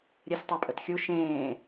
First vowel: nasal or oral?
oral